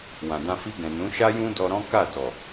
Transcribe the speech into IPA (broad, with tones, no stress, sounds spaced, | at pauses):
w ã˨ d ã˧ f i˧ ɡ ɛ̃˨ n ũ˨˦ ʃ a˦ j ũ˦ d ɔ˧ ɾ ɔ̃˦ k a˦˨ d ɔ˨